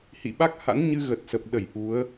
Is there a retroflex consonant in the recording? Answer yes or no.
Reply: no